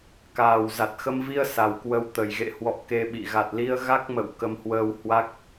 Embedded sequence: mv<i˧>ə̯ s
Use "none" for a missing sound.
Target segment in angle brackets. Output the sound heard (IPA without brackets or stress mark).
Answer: i˧